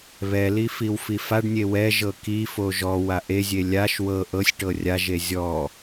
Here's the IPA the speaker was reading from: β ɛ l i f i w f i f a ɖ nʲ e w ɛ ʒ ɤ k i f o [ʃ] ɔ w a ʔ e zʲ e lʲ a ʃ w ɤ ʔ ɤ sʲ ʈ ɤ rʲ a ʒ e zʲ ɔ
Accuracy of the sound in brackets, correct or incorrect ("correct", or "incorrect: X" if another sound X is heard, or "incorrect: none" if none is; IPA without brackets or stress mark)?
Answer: incorrect: ʒ